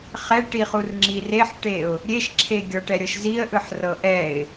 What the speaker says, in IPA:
χɛʈiχur ŋ͡ǁireħʈeʊ̯ | ɾʲeʃǁʰeɡʲɔ ʈɛɾʲɤʃziə̯ʔɯħ rɤʔɛɪ̯

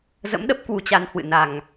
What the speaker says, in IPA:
zə̰˧˥mɗə˦˥p̚ kwu˧t͡ɕa˧nhwɨ̰˧˨na˨˩ŋ

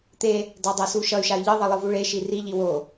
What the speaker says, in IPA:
t̪e | dadˤasuʃʌy̯ ʃay̯ʎɯðˤʌ lˠɯvuɭeʃi riʎi wo

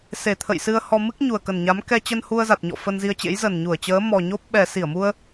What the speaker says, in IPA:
se˨˩t̪ʰə̰˧˨jsɨ˧ə̯ hɔ˧ mɨ˦˥k̚ ɲu˨˩ə̯kə˨˩nɲa˨˦m kɛ˧t͡ɕə˧n hu˧ə̯za˨˩t̚ɲɔ̰˧˨ fə˧nzi˧ə̯t͡ɕḛ˧˥j zə˨˩nɲu˧˩ə̯t͡ɕəː˨˦ mɔ˨˩ɲo˦˥p̚ɓɛ˨˩ si˧˩ə̯mu˧ə̯

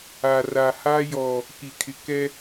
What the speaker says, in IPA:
a˨ ra˨ha˦jɔ˨ | ki˨kʰɪ˨kɛ˦

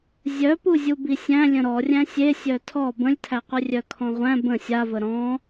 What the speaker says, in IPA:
zʲœpuzʲubi sʲæ̃lʲə̃ ɾɔrʲæ̃ sʲesʲœ tʰɔ bə̃lʲtʰæqʷɨ rʲœkʰɔ̃ʁʷæ̃ bə̃ sʲavə ɾɔ̃

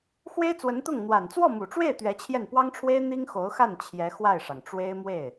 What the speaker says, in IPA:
xwe˥ɪ̯t͡swə˧˥nt̪ʊ˥˩ŋ n̪wa˨˩nt͡swɔ˥˩mu˨˩ʈ͡ʂwe˥˩ɪ̯ t̪ɥɛ˧˥t͡ɕʰjɛ˥˩n pwɑ˥ŋʈ͡ʂʰwe˥ɪ̯ n̪i˥ŋxo˧˥ʊ̯xa˥˩n t͡ɕʰjɛ˧˥xwa˥˩ɪ̯ʂɑ˩ŋʈ͡ʂwe˥ɪ̯ mwe˥˩ɪ̯

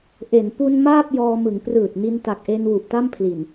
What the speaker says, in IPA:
ʔe˩˦n pu˧n maː˥˩p̚jɔː˧mɯ˩˦ŋ prɯː˨˩t̚ni˧nta˨˩k̚ʔe˧n wu˨˩ʔta˥˩mpʰli˨˩n

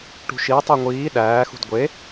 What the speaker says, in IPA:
ʈṳʃitˤe ŋʷiː ɗæːxṳd ɡʷe

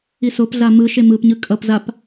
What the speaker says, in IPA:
isopɮa mɯʃe mɯpɲɯ kʼʌpzap

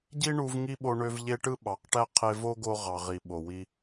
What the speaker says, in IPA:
ɟi˦ɳu˧v ŋi˦ɓo˧ɳø˧v ʎe˦ ʈɯ˦ɓɑ˨˦qʈæ˦ qʰe˧vo˦ɡo˧ ʁɑ˨ʁi˨ ɓo˨wi˧

